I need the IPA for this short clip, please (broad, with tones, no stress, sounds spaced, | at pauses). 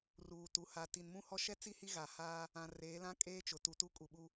r uː˨ t u˨ h a˨ t i˨ n m ũ˦ h ɔ˦ ʃ ɛ˦ t͡s i˦ h i˦ ɣ a˨ h aː˦ | ã˨ r eː˨˦ l ã˦ kʼ eː˦ t͡ʃ ʊ˨ t u˨ t u˦ kʼ u˨ ɓ u˦